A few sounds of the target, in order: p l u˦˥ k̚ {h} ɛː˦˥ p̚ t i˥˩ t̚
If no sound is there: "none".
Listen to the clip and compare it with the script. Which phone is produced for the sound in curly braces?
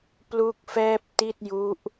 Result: f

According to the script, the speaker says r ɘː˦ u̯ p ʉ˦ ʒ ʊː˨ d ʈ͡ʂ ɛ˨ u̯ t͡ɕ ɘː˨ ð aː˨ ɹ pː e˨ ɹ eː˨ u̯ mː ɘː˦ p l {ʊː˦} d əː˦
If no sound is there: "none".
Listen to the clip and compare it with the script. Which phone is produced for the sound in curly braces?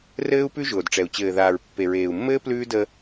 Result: ʉː˦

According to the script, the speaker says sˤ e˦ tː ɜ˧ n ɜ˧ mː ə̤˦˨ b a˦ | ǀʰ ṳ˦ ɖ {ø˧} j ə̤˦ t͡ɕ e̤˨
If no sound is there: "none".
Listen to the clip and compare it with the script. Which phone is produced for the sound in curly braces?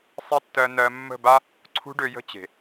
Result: ø˧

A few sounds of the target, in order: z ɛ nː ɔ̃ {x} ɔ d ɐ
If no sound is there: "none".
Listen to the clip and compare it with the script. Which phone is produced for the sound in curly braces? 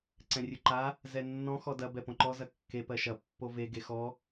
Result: x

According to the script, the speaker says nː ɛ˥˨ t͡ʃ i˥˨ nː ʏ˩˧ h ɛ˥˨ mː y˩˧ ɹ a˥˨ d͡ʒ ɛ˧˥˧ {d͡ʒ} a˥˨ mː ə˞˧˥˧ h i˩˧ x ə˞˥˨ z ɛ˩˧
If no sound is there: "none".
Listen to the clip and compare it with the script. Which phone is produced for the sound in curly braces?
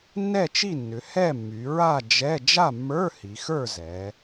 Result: d͡ʒ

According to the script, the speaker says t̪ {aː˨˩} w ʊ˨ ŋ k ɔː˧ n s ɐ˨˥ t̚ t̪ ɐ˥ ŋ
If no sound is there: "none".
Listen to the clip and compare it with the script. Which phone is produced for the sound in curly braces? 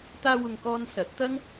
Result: aː˧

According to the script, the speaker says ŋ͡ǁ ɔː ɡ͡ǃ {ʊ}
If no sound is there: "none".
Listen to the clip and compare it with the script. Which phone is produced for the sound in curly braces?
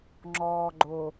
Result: ʊ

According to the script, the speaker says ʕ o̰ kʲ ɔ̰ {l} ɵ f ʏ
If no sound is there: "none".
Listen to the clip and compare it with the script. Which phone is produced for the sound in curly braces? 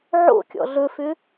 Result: ɮ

